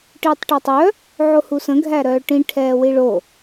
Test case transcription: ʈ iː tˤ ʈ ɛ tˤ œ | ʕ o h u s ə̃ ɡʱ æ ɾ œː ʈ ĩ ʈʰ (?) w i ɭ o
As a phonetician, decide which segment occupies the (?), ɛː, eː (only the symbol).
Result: ɛː